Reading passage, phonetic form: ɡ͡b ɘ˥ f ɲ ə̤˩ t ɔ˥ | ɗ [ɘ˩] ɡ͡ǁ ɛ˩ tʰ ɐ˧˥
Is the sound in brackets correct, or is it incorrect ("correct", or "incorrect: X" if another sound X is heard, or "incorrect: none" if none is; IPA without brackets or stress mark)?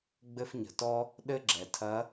incorrect: ɘ˥